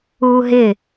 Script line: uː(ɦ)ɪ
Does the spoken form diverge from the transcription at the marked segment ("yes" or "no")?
no